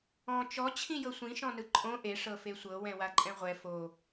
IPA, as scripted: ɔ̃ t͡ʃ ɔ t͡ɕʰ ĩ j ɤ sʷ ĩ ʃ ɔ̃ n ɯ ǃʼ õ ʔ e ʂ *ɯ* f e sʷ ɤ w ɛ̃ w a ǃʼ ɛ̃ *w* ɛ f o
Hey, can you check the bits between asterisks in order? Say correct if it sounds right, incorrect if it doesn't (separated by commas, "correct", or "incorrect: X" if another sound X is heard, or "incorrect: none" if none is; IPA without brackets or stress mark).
incorrect: ɤ, incorrect: ʁʷ